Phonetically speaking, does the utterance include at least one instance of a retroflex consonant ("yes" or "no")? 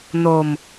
no